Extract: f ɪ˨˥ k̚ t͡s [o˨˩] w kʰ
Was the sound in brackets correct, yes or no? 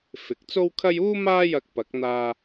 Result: no